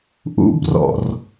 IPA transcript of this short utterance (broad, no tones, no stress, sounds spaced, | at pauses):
ʔ ṵ b r ɔ̰ r